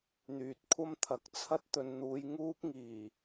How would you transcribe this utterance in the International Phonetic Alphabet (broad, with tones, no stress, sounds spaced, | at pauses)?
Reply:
n̪ yː˨ t̚ kʷʰ ɐ˥ m t̪ʰ ɐ˨˥ k̚ t͡sʰ ɐ˥ t̚ t̪ ɵ˨ n n̪ uː˨˧ j ŋ uː˥ p̚ ŋ iː˨˩